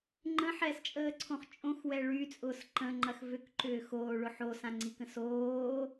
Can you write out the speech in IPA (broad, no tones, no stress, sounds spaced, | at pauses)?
ŋ͡ǃ ə̃ ħ ɛ s t͡ʃʼ əː ǀʰ õ χ t͡ʃʼ õ x w ɛ ɭ y t͡sʼ ʊː s ǃ ə̃ ŋ͡ǃ ɐ x v ʏ k ǃ ʏː x oː ɭ ʊ ħ o s ã ŋ͡ǀ i k ə̃ s oː